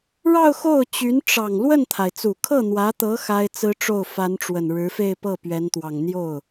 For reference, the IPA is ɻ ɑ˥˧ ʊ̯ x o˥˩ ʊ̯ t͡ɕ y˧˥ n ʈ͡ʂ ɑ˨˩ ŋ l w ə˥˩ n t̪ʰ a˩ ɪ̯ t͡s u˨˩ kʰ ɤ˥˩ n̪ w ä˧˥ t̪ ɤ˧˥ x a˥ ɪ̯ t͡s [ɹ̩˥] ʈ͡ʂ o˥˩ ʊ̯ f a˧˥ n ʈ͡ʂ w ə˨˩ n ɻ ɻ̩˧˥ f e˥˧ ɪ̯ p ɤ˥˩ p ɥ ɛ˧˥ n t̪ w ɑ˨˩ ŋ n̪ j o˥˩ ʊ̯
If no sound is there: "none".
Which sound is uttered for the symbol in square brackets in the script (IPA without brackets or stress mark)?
ɹ̩˥